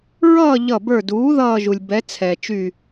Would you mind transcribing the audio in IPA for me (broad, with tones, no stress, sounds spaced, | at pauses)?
ɹ ʌː˥˨ ʎ ʌ˧˩ b ə˞˧˩ d uː˩˥ ð ʌː˥˨ ʒ u˩ lʲ b ɛ˩˥ t͡sʰ ɛ˩ t͡ʃ y˥˨